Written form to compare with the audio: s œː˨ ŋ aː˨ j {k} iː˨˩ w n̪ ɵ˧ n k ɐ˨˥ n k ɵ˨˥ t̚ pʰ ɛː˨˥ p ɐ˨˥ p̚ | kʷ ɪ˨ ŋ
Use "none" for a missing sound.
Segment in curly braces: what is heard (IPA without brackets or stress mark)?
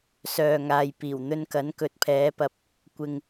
p